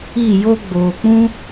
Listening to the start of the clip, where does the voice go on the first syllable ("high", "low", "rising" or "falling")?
falling